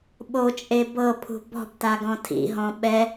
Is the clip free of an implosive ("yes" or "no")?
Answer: no